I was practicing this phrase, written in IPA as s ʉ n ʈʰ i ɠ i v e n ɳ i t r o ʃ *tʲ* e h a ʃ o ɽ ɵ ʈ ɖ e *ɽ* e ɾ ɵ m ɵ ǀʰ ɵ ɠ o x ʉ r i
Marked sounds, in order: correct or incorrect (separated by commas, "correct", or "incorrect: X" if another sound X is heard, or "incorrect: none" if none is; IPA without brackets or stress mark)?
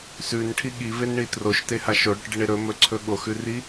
incorrect: t, incorrect: ɳ